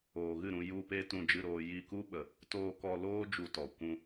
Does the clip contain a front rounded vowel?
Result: no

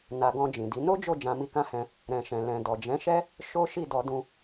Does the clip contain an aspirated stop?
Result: no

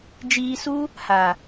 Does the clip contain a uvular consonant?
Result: no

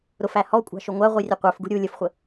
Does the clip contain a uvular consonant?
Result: yes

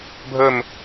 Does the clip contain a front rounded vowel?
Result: no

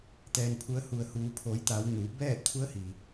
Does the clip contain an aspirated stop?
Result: yes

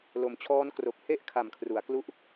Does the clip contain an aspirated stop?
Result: yes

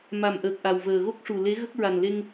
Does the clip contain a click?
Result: no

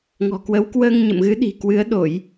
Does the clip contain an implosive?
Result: yes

